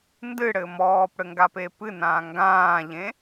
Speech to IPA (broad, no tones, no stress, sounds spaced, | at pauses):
n d ɨ ɽ ɘ m ɔː p ɽ ɘ ŋ ɡ a p e p ɨ n ãː ŋ ɡ ãː ʎ ẽ